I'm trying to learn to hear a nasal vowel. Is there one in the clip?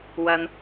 no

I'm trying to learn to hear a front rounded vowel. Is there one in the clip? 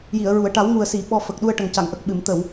no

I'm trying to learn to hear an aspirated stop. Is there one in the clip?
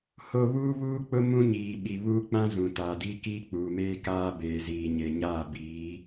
no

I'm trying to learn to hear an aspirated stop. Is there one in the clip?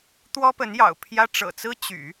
yes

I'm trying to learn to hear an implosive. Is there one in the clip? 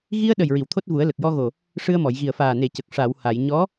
yes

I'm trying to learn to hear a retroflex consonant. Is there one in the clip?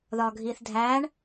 yes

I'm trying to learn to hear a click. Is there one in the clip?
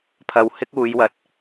no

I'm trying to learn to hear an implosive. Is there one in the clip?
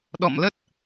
yes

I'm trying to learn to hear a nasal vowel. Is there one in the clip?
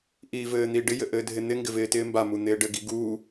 no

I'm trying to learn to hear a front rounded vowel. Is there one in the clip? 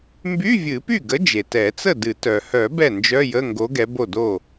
yes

